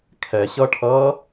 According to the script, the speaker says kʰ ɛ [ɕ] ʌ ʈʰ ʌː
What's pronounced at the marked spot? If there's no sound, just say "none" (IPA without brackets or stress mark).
ɕ